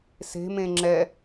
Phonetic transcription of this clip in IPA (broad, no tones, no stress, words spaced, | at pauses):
se̤mẽ ŋ͡ǁɛ